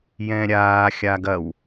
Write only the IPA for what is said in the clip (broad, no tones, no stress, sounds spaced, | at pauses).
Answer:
j ɛ̃ ɾʲ aː xʲ a ɡ ɐ w